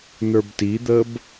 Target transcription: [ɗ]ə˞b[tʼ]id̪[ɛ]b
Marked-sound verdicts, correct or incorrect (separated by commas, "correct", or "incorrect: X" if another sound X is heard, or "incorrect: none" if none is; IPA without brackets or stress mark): incorrect: n, incorrect: t, incorrect: ə